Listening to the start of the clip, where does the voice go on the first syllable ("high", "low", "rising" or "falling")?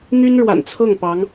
high